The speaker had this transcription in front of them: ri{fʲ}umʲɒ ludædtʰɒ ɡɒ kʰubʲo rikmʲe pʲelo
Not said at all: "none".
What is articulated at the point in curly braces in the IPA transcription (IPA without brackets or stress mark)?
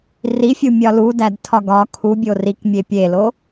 fʲ